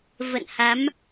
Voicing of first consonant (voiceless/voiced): voiced